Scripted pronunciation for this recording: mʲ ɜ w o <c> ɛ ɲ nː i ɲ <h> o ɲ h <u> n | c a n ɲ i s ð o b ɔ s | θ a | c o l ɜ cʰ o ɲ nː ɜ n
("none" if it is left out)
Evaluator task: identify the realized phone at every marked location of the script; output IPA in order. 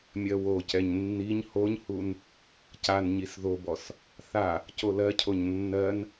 c, h, u

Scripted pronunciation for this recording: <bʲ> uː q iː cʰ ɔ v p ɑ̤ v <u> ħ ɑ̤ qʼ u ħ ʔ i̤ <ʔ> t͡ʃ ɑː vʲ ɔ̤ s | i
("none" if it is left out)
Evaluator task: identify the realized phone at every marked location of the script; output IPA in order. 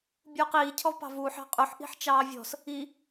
bʲ, uː, ħ

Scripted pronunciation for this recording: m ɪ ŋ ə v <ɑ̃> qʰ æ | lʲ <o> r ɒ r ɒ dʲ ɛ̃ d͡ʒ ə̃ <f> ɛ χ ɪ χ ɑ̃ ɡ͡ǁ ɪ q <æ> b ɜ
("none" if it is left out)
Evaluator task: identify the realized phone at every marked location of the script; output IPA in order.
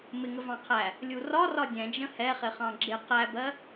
ɑ̃, u, h, æ

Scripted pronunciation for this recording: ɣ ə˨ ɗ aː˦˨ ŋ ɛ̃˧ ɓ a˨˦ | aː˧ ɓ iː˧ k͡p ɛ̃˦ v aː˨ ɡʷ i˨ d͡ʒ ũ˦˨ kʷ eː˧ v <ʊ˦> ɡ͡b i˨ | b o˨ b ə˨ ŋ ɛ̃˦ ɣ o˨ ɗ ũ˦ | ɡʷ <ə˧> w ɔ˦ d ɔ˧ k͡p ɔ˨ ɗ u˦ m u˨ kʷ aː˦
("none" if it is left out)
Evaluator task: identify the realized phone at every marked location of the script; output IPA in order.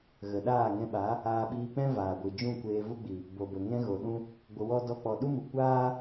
u˦, ə˧

